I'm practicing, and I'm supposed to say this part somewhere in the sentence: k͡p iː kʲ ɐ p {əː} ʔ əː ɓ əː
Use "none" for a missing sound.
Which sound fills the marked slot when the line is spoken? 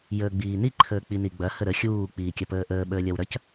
əː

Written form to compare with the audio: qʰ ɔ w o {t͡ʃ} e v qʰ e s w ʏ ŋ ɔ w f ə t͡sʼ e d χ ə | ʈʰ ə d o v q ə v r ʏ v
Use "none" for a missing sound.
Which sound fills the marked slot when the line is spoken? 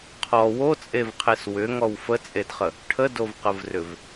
t͡sʼ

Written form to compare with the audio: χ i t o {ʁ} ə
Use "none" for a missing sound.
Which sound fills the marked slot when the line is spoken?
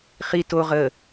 ʁ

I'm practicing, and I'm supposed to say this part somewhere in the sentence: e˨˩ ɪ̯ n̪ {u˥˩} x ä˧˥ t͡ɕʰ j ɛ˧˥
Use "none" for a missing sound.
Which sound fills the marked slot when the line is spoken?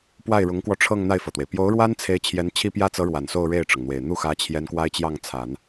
u˥˩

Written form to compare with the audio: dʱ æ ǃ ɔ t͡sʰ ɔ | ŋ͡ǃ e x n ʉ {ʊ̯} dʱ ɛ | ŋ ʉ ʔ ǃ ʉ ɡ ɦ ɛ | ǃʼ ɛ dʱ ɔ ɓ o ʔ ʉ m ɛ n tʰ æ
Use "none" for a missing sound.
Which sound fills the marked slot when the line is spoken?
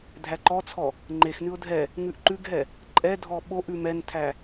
ʊ̯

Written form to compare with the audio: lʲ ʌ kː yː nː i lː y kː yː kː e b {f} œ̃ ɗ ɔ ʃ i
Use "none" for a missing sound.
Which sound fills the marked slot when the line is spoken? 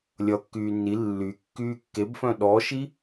f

